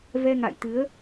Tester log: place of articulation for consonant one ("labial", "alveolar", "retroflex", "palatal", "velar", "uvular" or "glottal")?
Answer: labial